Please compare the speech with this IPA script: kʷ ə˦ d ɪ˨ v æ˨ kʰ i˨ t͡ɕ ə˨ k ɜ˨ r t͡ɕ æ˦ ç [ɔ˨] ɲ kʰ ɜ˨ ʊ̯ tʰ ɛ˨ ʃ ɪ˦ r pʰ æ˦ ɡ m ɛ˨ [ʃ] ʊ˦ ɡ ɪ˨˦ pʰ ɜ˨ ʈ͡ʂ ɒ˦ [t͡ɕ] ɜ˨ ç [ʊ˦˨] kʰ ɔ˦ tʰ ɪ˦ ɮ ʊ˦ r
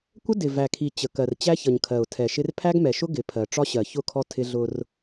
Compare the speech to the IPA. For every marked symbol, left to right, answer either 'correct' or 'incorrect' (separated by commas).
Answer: incorrect, correct, incorrect, correct